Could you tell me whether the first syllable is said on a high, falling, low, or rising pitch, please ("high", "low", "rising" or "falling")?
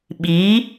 rising